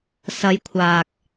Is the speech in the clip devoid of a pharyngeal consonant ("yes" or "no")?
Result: yes